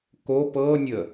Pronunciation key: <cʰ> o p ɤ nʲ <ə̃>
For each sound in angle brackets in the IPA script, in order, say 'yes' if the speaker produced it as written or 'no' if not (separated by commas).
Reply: no, no